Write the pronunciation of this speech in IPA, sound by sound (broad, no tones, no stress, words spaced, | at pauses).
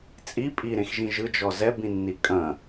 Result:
t͡sʼi pʼiɾẽxʒĩ ʒɯd͡ʒɔ zɛbĩnːi kʼɐ̃